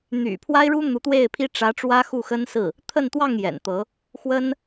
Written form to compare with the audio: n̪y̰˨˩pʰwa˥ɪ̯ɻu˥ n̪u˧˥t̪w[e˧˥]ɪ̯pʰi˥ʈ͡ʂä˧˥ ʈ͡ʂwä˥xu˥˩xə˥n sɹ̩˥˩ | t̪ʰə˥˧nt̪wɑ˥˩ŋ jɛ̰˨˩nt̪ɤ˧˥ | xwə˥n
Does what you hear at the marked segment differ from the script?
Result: yes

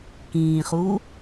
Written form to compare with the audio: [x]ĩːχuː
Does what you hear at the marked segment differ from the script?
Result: yes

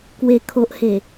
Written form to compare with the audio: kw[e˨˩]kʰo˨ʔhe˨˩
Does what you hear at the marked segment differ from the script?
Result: no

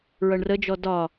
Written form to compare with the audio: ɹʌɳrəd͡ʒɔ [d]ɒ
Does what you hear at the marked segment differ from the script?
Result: no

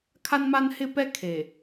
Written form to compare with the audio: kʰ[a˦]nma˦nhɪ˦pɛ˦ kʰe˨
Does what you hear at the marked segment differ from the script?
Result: no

